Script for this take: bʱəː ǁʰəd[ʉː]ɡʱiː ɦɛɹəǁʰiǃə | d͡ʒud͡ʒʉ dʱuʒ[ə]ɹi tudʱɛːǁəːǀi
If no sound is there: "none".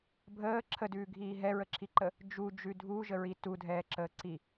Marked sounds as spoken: ʉː, ə

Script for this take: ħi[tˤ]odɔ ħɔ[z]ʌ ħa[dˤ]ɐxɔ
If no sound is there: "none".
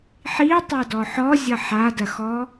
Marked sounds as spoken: tˤ, zʲ, d

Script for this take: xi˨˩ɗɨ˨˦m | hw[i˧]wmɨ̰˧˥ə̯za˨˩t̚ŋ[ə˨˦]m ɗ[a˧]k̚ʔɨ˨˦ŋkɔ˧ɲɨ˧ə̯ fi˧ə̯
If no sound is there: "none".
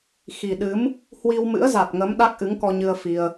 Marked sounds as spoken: i˧, ə˨˦, a˦˥

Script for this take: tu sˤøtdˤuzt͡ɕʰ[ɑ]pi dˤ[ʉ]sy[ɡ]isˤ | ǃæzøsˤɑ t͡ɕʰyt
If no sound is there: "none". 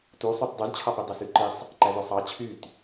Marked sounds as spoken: ɑ, ø, ǃ

